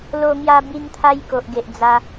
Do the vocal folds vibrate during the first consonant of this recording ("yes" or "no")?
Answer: yes